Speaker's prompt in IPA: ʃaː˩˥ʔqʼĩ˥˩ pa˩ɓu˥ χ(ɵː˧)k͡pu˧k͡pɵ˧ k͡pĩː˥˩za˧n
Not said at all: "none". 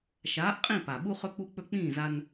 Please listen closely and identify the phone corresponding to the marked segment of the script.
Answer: ɵ˧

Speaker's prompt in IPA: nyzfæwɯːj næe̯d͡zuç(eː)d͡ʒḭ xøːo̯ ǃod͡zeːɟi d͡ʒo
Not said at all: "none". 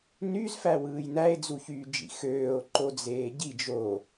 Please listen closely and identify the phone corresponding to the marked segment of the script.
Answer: yː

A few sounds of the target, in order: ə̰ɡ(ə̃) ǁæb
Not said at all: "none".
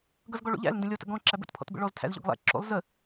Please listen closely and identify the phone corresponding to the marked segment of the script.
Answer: ɔ̃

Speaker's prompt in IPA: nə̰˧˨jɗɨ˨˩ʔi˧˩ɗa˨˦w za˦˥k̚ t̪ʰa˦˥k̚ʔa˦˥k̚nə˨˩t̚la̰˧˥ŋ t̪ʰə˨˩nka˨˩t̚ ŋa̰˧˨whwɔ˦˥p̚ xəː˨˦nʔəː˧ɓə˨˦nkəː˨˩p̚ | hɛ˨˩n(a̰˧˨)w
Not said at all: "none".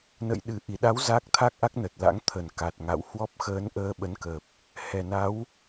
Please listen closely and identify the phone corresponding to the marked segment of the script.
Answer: a˨˦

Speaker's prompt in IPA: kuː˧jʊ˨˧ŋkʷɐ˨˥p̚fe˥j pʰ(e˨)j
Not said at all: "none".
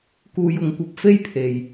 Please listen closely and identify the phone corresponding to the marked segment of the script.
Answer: e˨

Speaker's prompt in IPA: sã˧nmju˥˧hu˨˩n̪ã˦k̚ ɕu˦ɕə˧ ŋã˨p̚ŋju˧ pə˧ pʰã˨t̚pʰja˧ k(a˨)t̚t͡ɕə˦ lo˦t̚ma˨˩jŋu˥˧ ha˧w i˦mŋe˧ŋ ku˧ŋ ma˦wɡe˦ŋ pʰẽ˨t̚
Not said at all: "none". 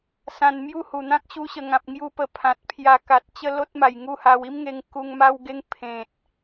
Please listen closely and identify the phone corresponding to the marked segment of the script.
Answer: a˨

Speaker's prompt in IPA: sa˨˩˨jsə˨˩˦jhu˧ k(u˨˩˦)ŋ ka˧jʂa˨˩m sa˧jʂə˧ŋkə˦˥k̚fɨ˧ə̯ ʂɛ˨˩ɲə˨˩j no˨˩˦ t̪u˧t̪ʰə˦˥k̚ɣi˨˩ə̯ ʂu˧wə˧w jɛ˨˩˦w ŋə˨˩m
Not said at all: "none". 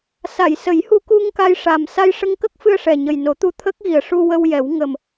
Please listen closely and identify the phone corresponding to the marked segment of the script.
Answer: u˧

